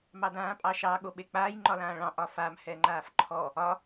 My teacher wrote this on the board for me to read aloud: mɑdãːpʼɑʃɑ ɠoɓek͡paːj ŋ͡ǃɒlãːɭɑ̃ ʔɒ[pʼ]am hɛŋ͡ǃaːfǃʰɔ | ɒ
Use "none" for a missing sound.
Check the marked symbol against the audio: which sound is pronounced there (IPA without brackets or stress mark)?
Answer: f